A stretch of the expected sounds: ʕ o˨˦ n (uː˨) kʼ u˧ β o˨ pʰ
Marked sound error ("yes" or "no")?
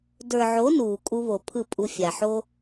no